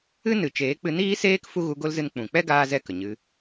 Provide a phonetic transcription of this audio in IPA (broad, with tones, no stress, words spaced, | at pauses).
ɨ˦ nɨ˨t͡ʃeː˨˦k͡pɨ˧ niː˦seː˦k fu˦ɣu˧ɡo˦lzɨ˧n k͡pũ˨k͡pɛ˦ɡaː˧zɛ˧ kə˨ɲɨ˧